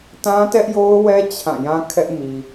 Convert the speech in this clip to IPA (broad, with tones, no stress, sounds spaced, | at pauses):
t ã˦ t ɛ˦ ʔ j o˦ ʊ̯ w ɛ˦ t͡ɕʰ ã˦˨ j ã˦ kʰ ɛ˦ ʔ m i˨